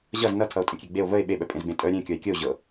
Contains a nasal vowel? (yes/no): yes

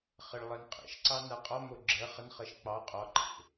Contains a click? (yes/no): yes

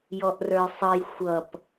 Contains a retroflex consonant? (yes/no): no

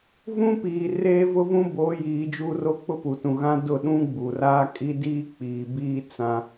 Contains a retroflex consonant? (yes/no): no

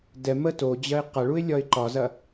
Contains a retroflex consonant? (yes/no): yes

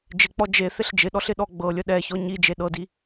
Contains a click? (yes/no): no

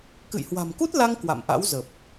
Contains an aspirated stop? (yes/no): no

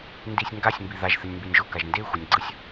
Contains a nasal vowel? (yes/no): no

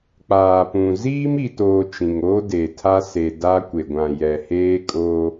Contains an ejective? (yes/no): yes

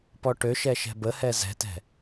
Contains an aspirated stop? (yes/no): no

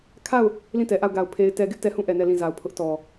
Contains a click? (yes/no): no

